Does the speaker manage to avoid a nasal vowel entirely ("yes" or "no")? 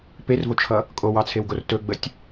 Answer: yes